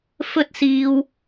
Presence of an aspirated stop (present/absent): absent